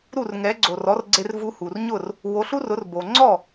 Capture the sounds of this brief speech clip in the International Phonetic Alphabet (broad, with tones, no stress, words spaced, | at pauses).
ɾu˥˩rŋɛ˩˥ɡ͡ǀo˩ rɔ˩˥rɡ͡ǀe˧rvu˧ hu˩rɲʊ˥˩r | wo˩˥ɬu˥rʊ˩˥rbo˩ ŋ͡ǀɔ˥˩